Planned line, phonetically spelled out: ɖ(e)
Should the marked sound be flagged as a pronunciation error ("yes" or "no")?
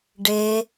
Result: no